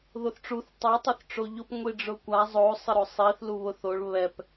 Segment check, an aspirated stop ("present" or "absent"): absent